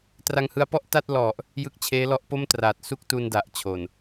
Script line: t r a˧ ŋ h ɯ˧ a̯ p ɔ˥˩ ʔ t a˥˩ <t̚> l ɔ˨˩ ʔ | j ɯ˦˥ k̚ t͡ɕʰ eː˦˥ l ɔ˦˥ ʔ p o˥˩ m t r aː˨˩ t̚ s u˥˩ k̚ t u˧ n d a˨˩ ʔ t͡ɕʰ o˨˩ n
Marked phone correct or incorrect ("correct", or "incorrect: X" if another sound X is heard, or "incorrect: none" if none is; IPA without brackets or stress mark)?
correct